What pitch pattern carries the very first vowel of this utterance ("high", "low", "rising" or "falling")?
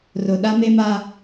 low